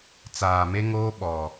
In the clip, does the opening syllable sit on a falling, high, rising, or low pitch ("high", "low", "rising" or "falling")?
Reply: low